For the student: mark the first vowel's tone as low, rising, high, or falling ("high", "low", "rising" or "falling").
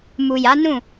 low